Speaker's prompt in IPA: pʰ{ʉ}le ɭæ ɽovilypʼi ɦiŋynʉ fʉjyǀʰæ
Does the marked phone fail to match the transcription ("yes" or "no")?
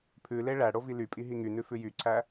no